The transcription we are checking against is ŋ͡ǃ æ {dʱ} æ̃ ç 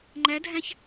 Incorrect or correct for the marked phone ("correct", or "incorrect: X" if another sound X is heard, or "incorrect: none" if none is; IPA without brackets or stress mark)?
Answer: correct